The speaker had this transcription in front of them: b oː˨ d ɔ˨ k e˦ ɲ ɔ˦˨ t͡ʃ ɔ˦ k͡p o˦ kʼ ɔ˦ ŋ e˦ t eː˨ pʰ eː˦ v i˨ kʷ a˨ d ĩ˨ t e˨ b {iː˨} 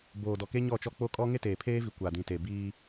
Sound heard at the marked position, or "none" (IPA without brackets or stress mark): iː˦